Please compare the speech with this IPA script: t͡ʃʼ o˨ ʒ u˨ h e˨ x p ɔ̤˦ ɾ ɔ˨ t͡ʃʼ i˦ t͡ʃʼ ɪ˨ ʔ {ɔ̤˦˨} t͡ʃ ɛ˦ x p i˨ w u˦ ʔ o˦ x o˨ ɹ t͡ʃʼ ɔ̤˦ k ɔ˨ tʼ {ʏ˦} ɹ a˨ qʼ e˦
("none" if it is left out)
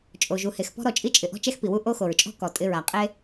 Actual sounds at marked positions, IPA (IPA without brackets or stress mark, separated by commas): ɔ̤˦, ɪ˦